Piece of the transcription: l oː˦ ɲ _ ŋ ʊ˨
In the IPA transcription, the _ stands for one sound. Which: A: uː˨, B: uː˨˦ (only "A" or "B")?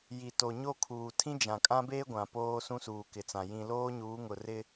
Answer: B